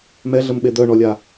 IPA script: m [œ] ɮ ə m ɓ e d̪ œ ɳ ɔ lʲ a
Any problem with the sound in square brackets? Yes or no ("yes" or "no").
yes